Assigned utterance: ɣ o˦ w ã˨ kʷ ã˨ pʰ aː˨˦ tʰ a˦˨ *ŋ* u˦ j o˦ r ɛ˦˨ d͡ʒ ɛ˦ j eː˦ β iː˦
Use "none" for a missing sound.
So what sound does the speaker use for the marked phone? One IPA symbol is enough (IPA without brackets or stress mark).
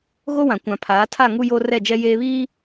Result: ŋ